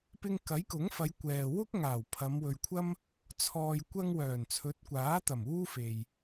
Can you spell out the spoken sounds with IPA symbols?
p ɪ˧ ŋ k ɐ˨˥ j k ʊ˨˥ ŋ f ɐ˨˧ j kʷ ɛː˨ w ʊ˥ k̚ ŋ aː˨˩ w pʰ ɐ˨˧ m w ɵ˧ ɥ kʷʰ ɐ˥ m | t͡sʰ ɔː˨ j kʷ ɐ˧ ŋ w œː˨˩ n t͡sʰ ɵ˨˥ t̚ kʷ aː˨˥ t̪ ɐ˨˩ m uː˥ f e˨ j

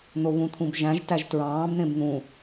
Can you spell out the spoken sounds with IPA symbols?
n̪ o β ũ t̪ʰ ũ b ʒ æ̃ ʒ t æ ʒ t ɹ ɑ̃ː b n̪ ẽ b n̪ ũ

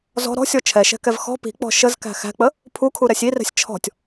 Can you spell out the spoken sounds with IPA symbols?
z ɔ̤ ɾ ɔ̤ sʲ ɔ t͡ʃʰ ɛ ʃ ɛ̤ k ɛ v x ɔ̤ p i̤ k͡p ɔ̤ ʃ ə z k æ̤ x æ̤ k͡p ə | pʰ u kʰ u ɾ ɛ sʲ i r ɛ̤ sʲ t͡ʃʰ ɔ̤ tʲ

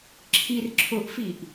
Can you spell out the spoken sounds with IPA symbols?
ǁʰ i r ǁʰ ʊ ʔ f i ʔ

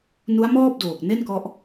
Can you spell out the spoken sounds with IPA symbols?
n u˦˥ a̯ m ɔː˥˩ p̚ d oː˨˩ k̚ n e˥˩ n k ɔ˥˩ ʔ

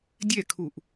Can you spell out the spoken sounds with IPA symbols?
dʲ ɛ kʰ u ʔ

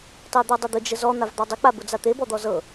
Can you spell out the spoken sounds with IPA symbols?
tˤ e d̪ ɤ dˤ ʊ d̪ ʊ d͡ʒ ə z ɔ n̪ a v d̪ ɑ dˤ ʊ k͡p a b ʊ d͡z a t̪ e b ɔ d̪ ɔ z ɤ

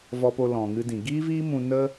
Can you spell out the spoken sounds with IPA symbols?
v ɔ˧ p o˧ l ɔ̃˨ ŋ ɨ˧ d ĩ˨ ɡ iː˦ v iː˦ m ũ˧ n ə˦

